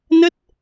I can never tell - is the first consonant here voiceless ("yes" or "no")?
no